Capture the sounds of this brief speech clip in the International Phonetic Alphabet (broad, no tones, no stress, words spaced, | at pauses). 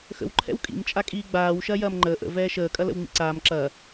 xə̰w ǃʰɛ̰wkʼḭm t͡ʃʼakʼiːɡ͡baːw ʃɐːjɐːmŋ͡ǃəː ʔə̰ vɛːʃəː kʼɐlə̰wŋ͡mḭǀaːm ǁɐː